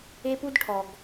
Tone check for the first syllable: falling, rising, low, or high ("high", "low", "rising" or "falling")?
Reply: high